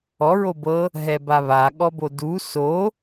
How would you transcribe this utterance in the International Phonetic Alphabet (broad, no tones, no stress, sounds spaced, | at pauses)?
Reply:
ɔ ɹ o b ɤ | ɦ ɛ b a β a ɠ ɔ b o d u s o